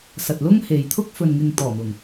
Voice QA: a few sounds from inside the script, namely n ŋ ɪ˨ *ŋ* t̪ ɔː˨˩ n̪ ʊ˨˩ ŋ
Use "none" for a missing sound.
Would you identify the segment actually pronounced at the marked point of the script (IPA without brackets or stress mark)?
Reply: ŋ